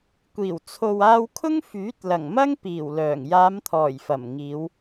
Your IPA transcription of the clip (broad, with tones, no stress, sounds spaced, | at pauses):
kʷ iː˨˩ w t͡sʰ o˨ w aː˧ w kʰ ʊ˥ ŋ f yː˨˥ t̚ l ɐ˨˩ ŋ m ɐ˥ ŋ p iː˨˩ w l œː˨˩ ŋ j aː˨˧ m t̪ʰ ɔː˨˩ j f ɐ˨˩ m ŋ iː˨˧ w